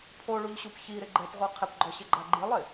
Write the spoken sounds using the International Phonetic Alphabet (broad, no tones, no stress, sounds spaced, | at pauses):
pʰ o ɭ u ʎ ɕ u p ç i ɾ ɪ ɡ͡ǃ ɛ p ʁʷ i qʰ ɪ p ɡ͡ǃ ɔ ɕ ɪ ɡ͡ǃ a ɡ͡ǃ i lˠ ɪ